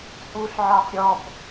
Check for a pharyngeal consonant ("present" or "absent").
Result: present